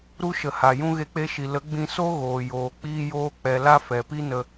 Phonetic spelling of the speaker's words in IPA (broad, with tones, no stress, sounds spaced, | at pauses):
ɾ u˦ ʃ ə˨ h a˨ j ũ˦ ɣ e˧ k͡p e˧ ʃ i˨ l ə˨˦ ɡ͡b ĩ˧ s o˦ ɣ oː˨ j oː˨ k͡p iː˦ j oː˦ k͡p ɛ˧ l a˦ f ɛ˨ p i˦ n ə˧